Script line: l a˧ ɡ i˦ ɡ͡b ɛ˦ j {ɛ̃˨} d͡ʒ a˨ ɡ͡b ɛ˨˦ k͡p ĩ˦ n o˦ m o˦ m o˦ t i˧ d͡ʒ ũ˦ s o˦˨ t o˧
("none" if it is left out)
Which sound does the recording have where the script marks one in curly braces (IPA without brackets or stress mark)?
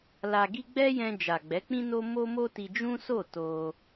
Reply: ɛ̃˧